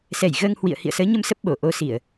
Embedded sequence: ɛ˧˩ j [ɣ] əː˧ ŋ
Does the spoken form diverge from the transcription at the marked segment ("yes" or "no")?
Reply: no